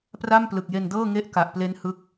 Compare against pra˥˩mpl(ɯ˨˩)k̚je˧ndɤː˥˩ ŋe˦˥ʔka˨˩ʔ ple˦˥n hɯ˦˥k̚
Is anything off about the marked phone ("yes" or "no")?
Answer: no